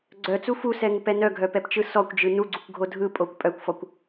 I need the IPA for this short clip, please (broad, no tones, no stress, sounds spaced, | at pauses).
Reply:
ɡ͡ǀ œ t͡s u f u s ɛ ŋ u p ɛ n œ ɡʱ œ p ɛ p t͡ʃ ɯ s ɔ kʷ d͡ʒ ɯ n u ɡ͡ǀ u kʷ ɡʱ o dʱ ɯ pʼ o kʷ pʼ œ kʷ f ɔ kʷ